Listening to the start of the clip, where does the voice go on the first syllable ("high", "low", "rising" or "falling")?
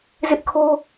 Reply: high